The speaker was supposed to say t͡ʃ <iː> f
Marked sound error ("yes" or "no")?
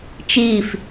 no